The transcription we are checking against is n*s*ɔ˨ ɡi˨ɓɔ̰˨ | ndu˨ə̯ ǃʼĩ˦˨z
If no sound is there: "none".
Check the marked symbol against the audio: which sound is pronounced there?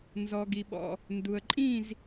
z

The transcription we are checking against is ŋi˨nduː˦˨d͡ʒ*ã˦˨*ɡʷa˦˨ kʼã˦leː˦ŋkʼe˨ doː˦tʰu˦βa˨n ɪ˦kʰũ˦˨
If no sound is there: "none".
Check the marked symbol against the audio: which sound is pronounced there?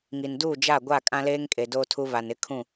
a˦˨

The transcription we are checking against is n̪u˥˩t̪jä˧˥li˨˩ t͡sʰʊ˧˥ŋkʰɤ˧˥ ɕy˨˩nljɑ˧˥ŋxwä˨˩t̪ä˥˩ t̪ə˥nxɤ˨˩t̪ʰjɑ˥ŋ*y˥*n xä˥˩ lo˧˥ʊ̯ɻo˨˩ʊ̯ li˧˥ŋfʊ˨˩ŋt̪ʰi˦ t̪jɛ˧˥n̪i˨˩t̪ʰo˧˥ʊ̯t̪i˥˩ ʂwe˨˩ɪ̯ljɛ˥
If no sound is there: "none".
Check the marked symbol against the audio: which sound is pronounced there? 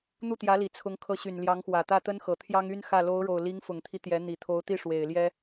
y˥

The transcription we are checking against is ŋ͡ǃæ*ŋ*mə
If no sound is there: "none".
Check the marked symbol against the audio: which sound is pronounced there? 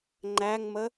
ŋ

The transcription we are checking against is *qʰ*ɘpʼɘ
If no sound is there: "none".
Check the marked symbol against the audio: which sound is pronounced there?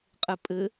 qʼ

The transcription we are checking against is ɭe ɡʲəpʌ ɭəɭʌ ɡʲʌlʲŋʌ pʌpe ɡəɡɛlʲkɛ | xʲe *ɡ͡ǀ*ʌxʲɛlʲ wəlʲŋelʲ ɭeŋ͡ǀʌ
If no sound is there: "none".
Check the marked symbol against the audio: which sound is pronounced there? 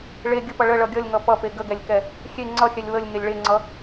ŋ͡ǀ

